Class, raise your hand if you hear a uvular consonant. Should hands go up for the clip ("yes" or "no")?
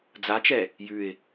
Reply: no